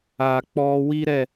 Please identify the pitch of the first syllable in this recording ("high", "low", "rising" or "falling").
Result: low